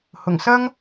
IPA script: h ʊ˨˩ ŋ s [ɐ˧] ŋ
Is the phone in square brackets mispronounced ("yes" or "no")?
yes